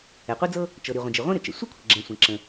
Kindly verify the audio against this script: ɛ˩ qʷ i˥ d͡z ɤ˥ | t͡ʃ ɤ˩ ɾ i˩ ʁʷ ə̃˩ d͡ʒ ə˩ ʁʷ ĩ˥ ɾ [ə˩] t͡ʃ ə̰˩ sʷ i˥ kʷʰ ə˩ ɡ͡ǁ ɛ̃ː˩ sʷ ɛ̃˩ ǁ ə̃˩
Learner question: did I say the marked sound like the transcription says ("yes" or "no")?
no